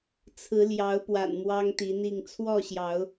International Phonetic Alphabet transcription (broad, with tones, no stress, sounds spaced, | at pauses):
t͡sʰ ɹ̩˨˦ l j ɑ˨˦ ʊ̯ p w a̰˨˩ n m w ɑ˦ ŋ t̪ i˨˦ n̪ i˥˨ ŋ t͡sʰ w ɔ˥˨ ɕ j ɑ˨˦ ʊ̯